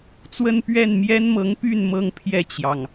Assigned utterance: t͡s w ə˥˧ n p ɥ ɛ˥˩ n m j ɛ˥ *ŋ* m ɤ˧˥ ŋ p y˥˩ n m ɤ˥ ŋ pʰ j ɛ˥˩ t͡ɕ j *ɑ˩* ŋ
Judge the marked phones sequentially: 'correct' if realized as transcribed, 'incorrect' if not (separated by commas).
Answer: incorrect, correct